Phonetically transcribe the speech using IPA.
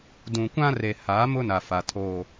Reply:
dũ˨kʷã˦re˨ haː˨˦mʊ˦na˨ fa˨ tʰoː˦

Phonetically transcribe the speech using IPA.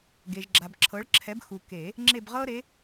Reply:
ɡe˨ʒɡ͡ǁa˨b ǁʰɤ˨˥ɭ ǁʰɛ˨˥bxu˨ke˨˩˦ | ŋ͡ǁe˦˨bʁɤ˦ɾe˨˥

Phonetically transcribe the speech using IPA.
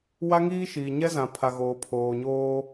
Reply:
wa˦ŋiː˦ʃiː˨ ɲɛ˦zã˨pʰa˨ ɣoː˨pʰoː˨ɲoː˦

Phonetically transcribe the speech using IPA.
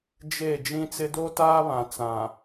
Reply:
d͡ʒe˦˨ d͡ʒĩ˦t͡sɪ˦ do˦taː˦βã˨ t͡sã˨

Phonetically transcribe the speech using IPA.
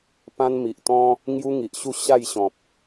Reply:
pã˦nmi˨ʔt̪ɔ̃˦ | ŋju˦ŋi˨ʔɕu˥˧ ɕa˥˧j ɕɔ̃˨p̚

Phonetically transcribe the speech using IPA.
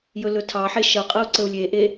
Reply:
jɵlɵtʰɑħe ʃʌqʼʌu̯ ǀəu̯lʲeʔe

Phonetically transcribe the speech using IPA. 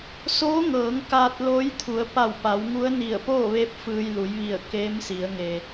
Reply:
soː˧˥ŋɤː˩˧ŋ kaː˧t̚loː˧˥jt̪ʰu˩˧ə̯ pa˧˩wpa˩˧wŋu˧˥ə̯ ni˧˩ə̯poː˥˨ʋe˧˥p̚ fɯː˧jlu˩˧jʋi˧˩ə̯ keː˧˥msi˩˧ə̯ŋe˩

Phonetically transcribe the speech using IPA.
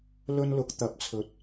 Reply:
lɵ˥nlʊ˨˥k̚ t̪ɐ˨p̚t͡sʰɵ˨t̚

